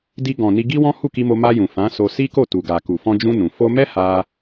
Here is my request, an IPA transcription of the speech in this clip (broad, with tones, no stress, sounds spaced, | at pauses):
d i˧ ɡ ɔ̃˨ n i˧ ɡ i˦ w ɔ̃˦ h u˦˨ k i˧ m o˧ m a˧ j ũ˨ f ã˨˦ s o˧ s i˦ k o˦˨ t u˨ ɡ a˨ k u˨ f ɔ̃˧ d͡ʒ ũ˧ n ũ˨ f o˧ m ɛ˦ h a˦